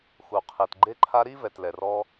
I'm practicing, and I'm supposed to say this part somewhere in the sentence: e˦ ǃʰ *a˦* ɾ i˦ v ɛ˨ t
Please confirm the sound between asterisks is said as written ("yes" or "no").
yes